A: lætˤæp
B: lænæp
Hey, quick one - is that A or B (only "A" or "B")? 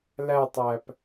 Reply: A